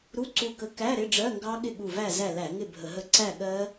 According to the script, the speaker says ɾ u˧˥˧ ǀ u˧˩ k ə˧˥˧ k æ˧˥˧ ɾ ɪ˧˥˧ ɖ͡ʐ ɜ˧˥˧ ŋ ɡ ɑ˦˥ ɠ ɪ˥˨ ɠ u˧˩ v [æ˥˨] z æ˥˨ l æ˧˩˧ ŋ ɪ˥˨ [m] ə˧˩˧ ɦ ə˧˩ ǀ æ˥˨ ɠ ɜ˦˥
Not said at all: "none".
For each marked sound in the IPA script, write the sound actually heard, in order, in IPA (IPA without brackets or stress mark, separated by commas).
æ˥˨, bʱ